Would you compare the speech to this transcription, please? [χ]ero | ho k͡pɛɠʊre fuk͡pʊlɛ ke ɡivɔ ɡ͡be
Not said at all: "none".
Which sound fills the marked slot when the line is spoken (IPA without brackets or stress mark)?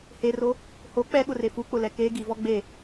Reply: h